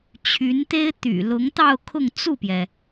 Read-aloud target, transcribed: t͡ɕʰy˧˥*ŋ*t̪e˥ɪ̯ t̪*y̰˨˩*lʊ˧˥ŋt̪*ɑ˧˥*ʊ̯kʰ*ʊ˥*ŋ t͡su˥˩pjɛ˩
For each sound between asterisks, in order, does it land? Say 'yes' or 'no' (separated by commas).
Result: no, yes, no, no